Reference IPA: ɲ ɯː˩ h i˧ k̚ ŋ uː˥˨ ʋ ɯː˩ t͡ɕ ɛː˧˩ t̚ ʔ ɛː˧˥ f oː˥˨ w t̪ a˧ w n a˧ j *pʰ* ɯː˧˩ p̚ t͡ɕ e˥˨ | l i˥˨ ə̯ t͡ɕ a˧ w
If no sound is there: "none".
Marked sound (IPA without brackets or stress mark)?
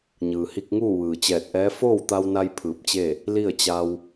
pʰ